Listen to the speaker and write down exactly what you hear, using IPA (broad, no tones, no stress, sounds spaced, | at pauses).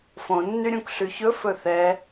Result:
f õ nː y ɾʲ ũ k ɬ y ç ɵ f ɵ θ ɛ